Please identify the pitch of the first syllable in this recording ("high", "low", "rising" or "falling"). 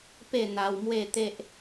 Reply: falling